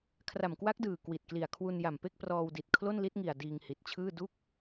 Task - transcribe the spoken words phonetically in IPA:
kʰ r a˨˩ m k w a˦˥ k̚ d ɯː˨˩ k w i˨˩ t̚ k l i˨˩ a̯ kʰ w u˧ n j a˨˩ m p e˥˩ k̚ p r ɔː˧ w d i˨˩ t̚ kʰ l o˥˩ n l i˦˥ t̚ ŋ i˨˩ a̯ d iː˧ ŋ h i˨˩ t̚ t͡ɕʰ ɯː˥˩ d u˥˩ k̚

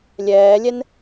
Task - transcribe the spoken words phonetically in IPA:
lʲ ɛː lʲ ɛ n

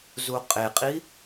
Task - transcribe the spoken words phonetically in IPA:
z u qʼ e qʼ i

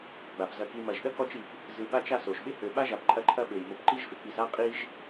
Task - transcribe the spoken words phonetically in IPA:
ɡ͡b a˩ p z ɐ˨ k i˨ m ɐ˩ ʒ ɗ ɐ˥ k ɔ˦ t͡ʃ i˨ p | z ɯ˨ ɓ a˦ t͡ʃ a˦ s o˩ ʒ ɓ ɪ˥ h ø˨ ɓ a˥ ʒ a˨ p ǃʼ ɐ˦ ǃʰ ɐ˦ ɓ ø˩ j m o˨ p ǃ i˦ ʒ f ɪ˩ k͡p i˨ s a˥ qʼ i˦ ʒ

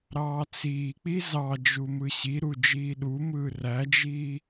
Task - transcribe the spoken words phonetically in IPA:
ɾ ɑː t͡s iː k͡p i z ɑ d͡ʒ u m ɯ ɕ i ɾ u d͡ʒ iː ɗ u m ɯː r æ d͡ʒ iː

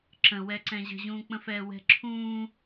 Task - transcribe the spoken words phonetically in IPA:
ǁ ə̃ w ɛ ǀ ɛ̃ ʑ ə̤ ʑ ũː k͡p ə̃ f ɛː w ɛ̤ ǁʰ ũː

